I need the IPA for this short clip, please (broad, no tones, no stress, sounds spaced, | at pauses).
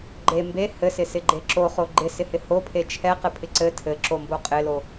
ɡ͡ǃ e m b e h ɘ s ɪ s ɪ ɡ͡ǃ e ǁ o χ o ɡ͡ǃ ɪ s ɪ h ɪ h o pʰ e t͡ʃʰ ɛ q ɘ pʰ ɪ ǀ ɘ tʰ ɘ ǁ o m b o qʼ ɪ l o